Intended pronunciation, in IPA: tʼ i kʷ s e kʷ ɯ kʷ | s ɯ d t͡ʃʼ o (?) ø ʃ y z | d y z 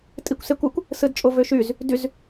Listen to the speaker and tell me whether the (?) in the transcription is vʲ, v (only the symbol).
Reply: v